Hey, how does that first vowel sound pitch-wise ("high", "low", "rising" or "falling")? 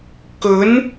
rising